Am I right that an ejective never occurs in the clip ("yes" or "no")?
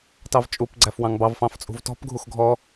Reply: no